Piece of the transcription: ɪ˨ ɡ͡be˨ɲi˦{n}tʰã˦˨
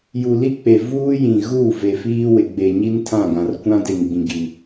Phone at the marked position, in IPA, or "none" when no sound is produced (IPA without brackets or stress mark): n